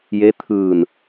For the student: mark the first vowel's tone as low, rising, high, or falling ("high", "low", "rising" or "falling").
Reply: rising